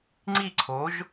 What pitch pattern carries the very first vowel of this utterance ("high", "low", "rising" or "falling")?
falling